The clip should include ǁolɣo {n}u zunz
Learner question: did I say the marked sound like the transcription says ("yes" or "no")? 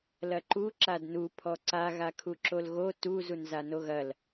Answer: no